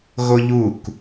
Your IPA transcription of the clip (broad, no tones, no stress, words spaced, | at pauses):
ɣoʎuk